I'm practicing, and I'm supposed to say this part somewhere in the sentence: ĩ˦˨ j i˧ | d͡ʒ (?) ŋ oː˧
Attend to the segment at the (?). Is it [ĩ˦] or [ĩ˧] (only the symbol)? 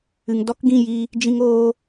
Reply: ĩ˧